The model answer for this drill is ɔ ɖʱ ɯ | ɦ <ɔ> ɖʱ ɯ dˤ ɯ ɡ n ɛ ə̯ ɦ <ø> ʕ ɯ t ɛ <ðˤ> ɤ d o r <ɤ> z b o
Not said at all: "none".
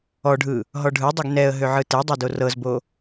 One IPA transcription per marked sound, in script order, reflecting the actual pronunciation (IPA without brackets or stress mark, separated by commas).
ɔ, ø, dˤ, ɤ